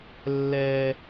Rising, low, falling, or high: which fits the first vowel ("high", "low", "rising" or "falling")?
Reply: high